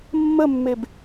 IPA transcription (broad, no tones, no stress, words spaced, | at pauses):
mːəmːeb